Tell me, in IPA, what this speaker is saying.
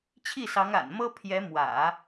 t͡ɕʰ i˥˩ s ɑ˧˥ ŋ a̰˨˩ n m ɤ˥ pʰ j ɛ˧˥ m w ä̰˨˩˦

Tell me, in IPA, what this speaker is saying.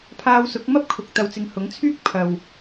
pʰ aː˧ w s ʊ˨˥ k̚ m ɐ˥ p̚ kʰ ʊ˨ k̚ t̪ ɐ˨ w t͡s ɪ˨˧ ŋ h ʊ˨˥ ŋ t͡sʰ yː˥ k̚ pʰ ɐ˨ w

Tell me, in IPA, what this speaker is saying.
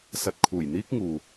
s ɐ˧ t̚ kʰ uː˨˩ j n̪ iː˥ k̚ ŋ uː˨

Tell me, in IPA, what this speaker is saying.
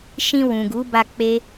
ʃ ĩ˧ w ũ˨ ɡ u˨˦ b a˧ k͡p e˦

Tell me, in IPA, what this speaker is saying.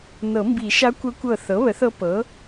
n ɤ˨˩˦ m b i˨˩˦ ʃ a˧˥ kʷ ə˧˥ kʷ ɤ˧˩ θ ɤ˩˥ β ə˩˥ θ ɤ˧˥ p ɤ˩˥

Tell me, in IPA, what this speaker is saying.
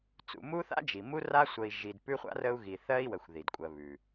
t͡s ṵ˨ m u˦ θ a̰˥ d͡ʒ i˩ m u˥ r a˥ sʷ ə˨ i̯ ʒ i˨ d p ʉ˥ χʷ a̰˥ r ə˦ u̯ ɣ i˨ θ ɜ˦ i̯ w ə˨ xʷ ð i˩ d kʷʼ ɜ˨ β ʉ˩

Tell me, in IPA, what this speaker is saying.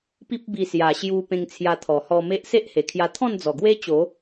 p i˦ p̚ b i˧ s j a˨˩ ɕ j u˧ p ẽ˧ ŋ t͡sʰ j a˧ t̪ʰ ɔ˨˩ h ɔ˧ m e˦ ʔ s e˦ ʔ h e˨˩ kʰ j a˧ t̪ʰ ɔ̃˥˧ n d͡z ɔ˨˩ ɡ w e˦ t͡ɕ o˨˦

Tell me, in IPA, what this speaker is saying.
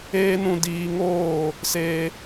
eː˦ n ũ˧ d iː˧ ŋ oː˦˨ | s eː˧

